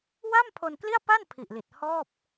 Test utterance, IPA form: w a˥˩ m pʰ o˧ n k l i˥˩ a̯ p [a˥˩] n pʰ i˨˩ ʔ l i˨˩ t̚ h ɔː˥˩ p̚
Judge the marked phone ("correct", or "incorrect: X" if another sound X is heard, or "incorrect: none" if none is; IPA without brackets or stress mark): correct